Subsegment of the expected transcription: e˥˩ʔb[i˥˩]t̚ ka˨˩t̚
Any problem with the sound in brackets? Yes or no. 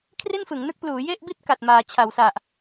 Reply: no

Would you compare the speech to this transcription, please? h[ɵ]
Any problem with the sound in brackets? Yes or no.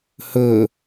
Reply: no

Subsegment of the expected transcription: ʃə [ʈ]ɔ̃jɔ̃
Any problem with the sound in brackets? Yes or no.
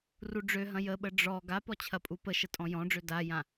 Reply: yes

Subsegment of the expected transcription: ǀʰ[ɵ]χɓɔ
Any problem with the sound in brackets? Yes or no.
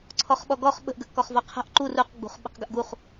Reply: yes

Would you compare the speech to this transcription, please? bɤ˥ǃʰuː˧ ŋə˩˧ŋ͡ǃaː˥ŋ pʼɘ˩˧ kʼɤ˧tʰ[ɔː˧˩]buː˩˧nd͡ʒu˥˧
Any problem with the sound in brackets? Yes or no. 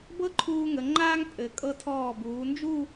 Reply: no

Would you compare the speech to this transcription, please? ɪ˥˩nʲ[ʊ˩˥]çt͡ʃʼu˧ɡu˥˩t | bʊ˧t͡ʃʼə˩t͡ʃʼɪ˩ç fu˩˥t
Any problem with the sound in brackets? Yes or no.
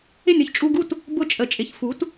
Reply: no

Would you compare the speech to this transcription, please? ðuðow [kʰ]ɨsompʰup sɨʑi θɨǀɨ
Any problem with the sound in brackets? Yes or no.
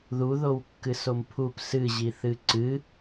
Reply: yes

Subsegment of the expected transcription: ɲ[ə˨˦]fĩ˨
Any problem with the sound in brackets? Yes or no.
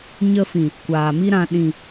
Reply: yes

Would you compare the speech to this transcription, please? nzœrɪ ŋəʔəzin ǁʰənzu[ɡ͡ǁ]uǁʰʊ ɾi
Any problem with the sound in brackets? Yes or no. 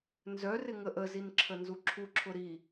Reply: yes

